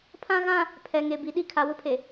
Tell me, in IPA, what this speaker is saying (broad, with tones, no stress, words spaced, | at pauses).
pʰã˦ɣã˦ | pʰɛ˨ŋe˨bi˨ɗi˦ kʰa˨wʊ˦pʰe˨